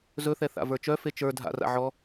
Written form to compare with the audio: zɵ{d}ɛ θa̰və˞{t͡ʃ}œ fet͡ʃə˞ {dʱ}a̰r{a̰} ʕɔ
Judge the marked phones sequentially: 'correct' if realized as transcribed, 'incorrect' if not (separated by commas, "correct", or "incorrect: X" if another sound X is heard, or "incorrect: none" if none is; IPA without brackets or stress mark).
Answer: incorrect: θ, correct, correct, correct